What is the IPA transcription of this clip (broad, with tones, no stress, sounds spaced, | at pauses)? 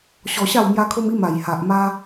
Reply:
ɕ ɔ˧ ɕ a˥˧ w m j a˧ kʰ o˧ m i˧ m a˨˩ j h a˨ ʔ m a˧